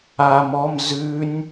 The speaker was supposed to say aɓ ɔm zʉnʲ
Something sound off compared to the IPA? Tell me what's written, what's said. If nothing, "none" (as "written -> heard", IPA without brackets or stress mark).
ɓ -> m